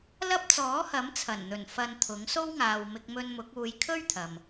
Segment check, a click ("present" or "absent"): absent